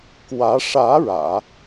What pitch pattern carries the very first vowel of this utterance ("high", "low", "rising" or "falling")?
rising